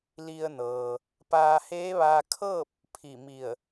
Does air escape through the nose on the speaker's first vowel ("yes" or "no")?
no